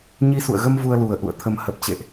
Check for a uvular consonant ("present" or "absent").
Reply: absent